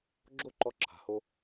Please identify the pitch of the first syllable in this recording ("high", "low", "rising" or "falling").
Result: high